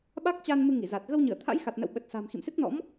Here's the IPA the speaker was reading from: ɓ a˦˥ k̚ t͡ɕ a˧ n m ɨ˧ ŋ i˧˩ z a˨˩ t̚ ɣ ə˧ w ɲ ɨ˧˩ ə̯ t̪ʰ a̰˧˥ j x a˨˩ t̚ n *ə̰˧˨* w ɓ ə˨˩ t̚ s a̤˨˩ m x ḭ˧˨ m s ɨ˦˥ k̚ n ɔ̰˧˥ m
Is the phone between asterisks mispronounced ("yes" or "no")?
no